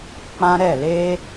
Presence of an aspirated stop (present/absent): absent